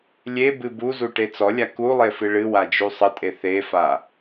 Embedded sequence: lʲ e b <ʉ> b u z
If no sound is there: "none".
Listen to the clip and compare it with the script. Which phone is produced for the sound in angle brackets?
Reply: ɨ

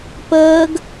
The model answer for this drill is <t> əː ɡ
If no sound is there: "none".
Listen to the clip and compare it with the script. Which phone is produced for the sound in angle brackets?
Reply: p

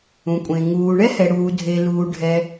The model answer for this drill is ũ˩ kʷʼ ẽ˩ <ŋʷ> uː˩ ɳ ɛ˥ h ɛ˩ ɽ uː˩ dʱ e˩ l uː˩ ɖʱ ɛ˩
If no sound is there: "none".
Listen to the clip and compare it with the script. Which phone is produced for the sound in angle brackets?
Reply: ŋ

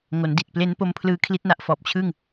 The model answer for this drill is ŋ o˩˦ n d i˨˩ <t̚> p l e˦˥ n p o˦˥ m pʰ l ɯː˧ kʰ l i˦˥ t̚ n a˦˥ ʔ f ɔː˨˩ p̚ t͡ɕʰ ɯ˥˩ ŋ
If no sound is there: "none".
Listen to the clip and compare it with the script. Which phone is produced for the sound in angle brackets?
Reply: t̚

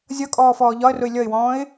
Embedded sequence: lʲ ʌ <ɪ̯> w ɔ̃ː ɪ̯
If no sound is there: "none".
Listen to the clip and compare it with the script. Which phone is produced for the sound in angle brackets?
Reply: ɪ̯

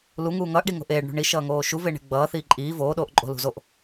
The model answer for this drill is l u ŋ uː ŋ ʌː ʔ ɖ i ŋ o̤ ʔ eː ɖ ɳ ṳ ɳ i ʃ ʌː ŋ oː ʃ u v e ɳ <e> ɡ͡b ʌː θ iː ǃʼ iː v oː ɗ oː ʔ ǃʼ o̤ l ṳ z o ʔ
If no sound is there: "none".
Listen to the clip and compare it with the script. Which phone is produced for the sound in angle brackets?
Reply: e̤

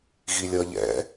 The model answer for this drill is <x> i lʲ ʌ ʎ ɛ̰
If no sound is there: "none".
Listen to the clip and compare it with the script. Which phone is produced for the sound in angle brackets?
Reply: ɣ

